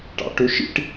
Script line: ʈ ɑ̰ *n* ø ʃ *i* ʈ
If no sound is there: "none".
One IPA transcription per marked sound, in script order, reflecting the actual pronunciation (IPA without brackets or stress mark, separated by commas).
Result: ʈ, ḭ